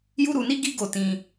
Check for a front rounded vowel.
absent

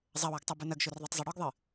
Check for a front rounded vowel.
absent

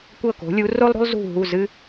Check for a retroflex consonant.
absent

